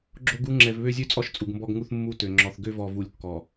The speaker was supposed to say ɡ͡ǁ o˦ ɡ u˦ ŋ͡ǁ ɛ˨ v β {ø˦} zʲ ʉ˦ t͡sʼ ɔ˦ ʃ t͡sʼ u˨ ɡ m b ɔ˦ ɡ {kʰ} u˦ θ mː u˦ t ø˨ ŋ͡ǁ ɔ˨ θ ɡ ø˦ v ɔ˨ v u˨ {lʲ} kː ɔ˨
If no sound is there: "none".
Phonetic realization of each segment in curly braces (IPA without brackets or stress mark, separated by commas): ø˦, ŋ, lʲ